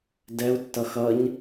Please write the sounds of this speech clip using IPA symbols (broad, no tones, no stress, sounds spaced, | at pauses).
d ɛ u̯ tː ʌ x ʌ ɲ